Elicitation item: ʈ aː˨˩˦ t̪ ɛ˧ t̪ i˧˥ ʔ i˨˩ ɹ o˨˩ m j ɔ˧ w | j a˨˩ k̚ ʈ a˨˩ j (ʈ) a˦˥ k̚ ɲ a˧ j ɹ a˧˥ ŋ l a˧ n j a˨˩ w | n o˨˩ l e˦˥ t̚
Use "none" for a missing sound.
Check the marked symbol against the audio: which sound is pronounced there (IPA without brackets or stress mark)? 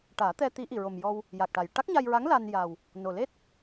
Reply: ʈ